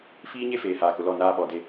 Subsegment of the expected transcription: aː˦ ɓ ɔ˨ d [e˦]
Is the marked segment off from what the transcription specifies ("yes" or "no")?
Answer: no